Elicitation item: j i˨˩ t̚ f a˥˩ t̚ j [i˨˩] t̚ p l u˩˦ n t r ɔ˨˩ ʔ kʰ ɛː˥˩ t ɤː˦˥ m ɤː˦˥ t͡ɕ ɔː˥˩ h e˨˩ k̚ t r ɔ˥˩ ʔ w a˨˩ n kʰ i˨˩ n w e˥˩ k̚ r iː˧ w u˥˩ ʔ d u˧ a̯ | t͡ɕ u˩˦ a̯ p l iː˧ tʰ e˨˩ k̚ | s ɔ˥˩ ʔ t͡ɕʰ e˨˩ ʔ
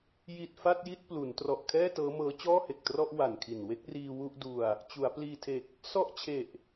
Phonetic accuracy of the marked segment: incorrect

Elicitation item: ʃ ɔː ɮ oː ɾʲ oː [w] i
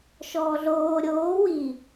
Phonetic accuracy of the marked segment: correct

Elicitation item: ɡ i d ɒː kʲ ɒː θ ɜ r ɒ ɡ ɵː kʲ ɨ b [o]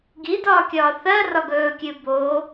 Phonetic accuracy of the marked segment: correct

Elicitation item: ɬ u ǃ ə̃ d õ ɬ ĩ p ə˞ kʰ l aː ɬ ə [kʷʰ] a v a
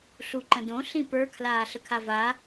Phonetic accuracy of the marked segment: incorrect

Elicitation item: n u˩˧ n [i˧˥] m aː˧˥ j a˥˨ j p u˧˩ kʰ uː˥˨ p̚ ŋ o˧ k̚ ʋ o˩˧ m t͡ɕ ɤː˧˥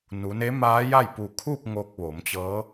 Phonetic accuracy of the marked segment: incorrect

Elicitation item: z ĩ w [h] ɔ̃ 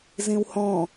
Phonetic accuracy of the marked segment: correct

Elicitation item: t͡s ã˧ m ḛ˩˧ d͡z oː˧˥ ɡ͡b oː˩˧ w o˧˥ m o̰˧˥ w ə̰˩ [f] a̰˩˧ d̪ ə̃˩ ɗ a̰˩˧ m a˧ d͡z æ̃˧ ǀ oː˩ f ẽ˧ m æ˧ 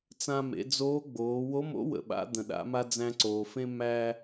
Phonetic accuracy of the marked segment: incorrect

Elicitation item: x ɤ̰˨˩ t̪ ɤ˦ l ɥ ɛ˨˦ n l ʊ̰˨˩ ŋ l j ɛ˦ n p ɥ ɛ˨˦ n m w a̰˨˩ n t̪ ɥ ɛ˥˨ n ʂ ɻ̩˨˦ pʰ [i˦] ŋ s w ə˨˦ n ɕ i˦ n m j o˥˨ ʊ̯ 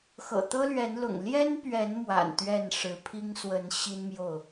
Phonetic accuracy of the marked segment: correct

